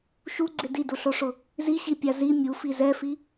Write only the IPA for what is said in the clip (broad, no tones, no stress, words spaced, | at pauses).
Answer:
ʃuɡ͡ǀɪ diduɬoʂʊ | ziɕipʲa zi mʲufi zɛfi